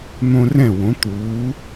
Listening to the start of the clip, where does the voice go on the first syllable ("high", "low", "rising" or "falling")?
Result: high